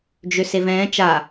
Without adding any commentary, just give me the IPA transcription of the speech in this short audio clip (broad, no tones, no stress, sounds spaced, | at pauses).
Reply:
d͡ʒ ʏ s e v ɛ̃ː t͡ʃ a